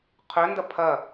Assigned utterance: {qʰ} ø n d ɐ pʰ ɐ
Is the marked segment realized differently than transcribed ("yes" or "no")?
no